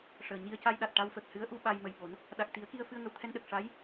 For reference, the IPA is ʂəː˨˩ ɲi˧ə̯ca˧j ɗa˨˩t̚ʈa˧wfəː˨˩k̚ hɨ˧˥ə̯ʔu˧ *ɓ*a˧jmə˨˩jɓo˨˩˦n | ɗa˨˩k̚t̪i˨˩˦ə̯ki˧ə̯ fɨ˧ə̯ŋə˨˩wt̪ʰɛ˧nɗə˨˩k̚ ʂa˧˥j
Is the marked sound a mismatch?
no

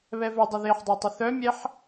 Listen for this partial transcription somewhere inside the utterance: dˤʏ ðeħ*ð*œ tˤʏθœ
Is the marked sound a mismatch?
yes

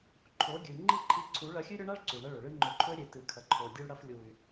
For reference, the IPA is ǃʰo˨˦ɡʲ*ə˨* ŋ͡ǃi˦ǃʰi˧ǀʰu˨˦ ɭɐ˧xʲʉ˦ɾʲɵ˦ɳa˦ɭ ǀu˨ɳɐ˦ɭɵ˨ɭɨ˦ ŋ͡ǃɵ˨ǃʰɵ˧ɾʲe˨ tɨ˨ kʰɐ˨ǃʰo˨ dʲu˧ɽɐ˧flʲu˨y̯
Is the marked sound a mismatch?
yes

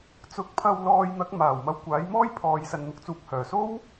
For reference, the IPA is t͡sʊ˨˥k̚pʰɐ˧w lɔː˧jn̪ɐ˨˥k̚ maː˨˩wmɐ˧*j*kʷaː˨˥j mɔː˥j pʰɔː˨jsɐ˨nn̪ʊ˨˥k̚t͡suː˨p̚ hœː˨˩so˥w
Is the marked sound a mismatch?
yes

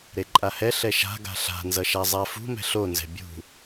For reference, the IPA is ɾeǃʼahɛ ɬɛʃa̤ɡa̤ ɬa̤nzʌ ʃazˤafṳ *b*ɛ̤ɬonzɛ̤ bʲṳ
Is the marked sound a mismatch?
yes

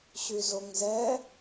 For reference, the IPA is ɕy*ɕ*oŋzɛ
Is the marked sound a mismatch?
yes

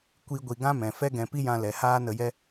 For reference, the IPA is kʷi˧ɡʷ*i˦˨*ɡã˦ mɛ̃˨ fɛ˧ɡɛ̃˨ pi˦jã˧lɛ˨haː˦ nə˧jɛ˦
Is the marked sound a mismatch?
yes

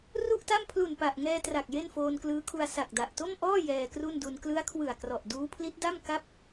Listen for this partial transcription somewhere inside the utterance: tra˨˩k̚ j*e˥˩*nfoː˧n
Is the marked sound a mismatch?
no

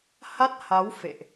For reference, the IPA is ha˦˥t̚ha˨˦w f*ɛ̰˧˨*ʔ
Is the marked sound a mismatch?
yes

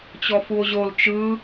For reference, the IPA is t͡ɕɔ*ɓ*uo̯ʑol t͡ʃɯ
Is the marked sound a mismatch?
yes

